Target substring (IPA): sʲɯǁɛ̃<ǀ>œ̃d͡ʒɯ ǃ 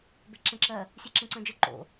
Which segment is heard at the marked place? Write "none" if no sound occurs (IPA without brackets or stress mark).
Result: ǀ